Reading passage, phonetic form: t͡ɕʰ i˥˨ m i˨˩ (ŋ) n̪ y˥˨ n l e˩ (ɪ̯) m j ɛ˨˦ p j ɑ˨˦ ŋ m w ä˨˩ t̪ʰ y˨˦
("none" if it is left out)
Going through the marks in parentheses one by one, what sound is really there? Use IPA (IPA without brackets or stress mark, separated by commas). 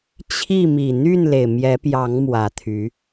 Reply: none, ɪ̯